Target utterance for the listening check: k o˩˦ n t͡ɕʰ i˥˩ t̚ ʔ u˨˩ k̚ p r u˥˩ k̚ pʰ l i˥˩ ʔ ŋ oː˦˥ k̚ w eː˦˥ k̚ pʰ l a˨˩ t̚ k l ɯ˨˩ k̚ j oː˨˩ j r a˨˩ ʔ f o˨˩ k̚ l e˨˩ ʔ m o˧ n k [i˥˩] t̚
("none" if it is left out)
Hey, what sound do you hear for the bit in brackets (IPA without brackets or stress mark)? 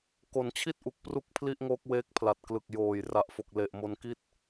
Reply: i˥˩